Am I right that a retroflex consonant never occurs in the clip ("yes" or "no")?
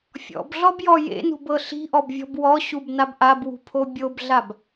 yes